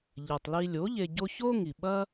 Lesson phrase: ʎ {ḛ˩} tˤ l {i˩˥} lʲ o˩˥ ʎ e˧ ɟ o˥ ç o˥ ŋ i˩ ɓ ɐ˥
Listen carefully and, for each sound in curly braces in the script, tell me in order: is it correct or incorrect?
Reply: incorrect, incorrect

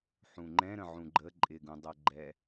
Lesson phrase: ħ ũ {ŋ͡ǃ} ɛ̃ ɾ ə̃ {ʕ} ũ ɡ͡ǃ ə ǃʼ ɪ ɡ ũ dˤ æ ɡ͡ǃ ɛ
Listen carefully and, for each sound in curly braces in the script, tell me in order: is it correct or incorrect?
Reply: correct, correct

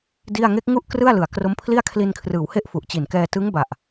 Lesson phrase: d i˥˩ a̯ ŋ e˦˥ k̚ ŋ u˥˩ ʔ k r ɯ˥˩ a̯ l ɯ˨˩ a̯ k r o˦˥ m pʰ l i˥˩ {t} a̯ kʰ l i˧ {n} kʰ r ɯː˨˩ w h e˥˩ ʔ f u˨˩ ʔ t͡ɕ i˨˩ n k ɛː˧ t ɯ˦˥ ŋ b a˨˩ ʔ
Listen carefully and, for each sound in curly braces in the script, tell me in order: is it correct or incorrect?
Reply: incorrect, correct

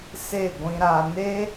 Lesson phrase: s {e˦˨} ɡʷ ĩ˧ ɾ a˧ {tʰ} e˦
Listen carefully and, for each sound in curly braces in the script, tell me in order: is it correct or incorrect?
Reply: correct, incorrect

